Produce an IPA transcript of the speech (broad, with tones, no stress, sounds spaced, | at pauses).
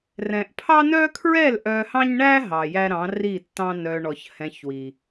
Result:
r ɛ̃˨ ʔ pʰ ɑ˦ n œ˦ kʰ ɹ ɛ˦˨ l ʔ œ˧ h ɑ̃˦ ɲ ɳ æ˦ ɦ ɑ˨ j æ˦ ɾ ɑ̃˨˦ r i˦˨ tː ɑ̃˦ n œ˧ ɳ ɔ˨ ç h ɛ̃˧ ç w i˨